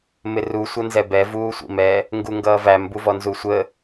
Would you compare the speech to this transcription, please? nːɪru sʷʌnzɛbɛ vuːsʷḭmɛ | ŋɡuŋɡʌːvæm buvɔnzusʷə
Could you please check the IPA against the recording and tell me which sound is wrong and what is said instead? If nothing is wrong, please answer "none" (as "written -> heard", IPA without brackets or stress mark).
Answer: nː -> m